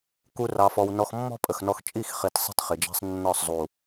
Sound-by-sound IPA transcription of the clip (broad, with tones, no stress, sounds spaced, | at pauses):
k u˦ r ɑ˧ f ɔ˧ w n ɔ˧ x mː ɔ̤˦ pʼ ə˨ x n ɔ˧ x t͡ʃʼ i˦˨ x χ i˨ t sˤ i̤˦ t χ ɪ˨ d͡ʒ æ̤˦ sˤ nː ɒ˦˨ sˤ zˤ u˨